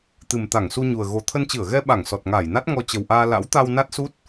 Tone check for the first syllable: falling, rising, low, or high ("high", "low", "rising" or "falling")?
low